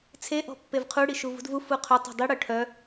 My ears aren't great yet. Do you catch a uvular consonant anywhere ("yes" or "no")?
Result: yes